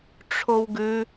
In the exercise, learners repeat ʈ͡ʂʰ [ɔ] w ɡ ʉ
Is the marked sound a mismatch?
yes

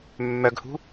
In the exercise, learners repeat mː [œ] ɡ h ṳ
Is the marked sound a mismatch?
no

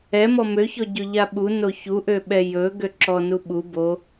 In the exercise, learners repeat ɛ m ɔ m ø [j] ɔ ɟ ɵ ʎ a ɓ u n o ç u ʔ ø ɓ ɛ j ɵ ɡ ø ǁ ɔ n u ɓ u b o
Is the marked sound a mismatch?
yes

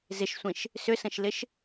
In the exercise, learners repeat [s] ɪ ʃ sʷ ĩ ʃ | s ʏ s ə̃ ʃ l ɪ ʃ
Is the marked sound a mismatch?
yes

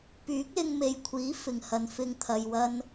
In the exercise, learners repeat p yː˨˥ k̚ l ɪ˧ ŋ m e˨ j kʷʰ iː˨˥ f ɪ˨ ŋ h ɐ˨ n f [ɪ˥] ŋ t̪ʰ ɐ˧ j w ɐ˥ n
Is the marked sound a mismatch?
no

